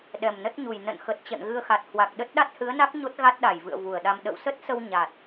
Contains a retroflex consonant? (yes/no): no